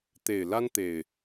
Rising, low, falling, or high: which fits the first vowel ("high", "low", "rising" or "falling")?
low